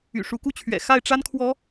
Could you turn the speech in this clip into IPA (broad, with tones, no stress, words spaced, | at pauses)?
y̰˨˩ʂu˨˦ku˥˨t͡ɕʰɥɛ̰˨˩ xa˥˨ɪ̯ʈ͡ʂa˦n kʰwɔ˨˦